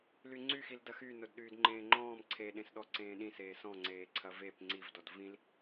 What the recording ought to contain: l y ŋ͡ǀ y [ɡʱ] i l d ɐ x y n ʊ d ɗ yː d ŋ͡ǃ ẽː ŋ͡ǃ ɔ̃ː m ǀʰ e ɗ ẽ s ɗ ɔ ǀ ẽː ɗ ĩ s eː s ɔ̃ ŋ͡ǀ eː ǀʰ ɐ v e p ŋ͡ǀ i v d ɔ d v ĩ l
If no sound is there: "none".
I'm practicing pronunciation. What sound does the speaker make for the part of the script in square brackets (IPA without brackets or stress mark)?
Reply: x